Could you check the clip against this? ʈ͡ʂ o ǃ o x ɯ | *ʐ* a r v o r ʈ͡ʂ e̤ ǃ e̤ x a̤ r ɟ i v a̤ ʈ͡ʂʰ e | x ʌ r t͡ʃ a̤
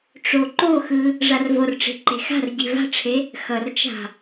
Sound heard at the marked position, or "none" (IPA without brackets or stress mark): ʐ